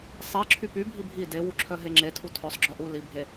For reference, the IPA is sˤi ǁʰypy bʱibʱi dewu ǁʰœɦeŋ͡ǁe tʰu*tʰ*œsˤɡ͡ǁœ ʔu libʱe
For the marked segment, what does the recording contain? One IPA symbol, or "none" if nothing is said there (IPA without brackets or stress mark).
tʰ